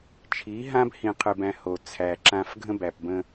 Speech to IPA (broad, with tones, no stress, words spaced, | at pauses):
t͡ʃʰi˨˦ɦã˦b hĩ˧qʰɨ˧bæ̃˧ho˨ t͡sʰæ˨ǁã˧f ɡʱə̃˦bæ˨pbə̃˧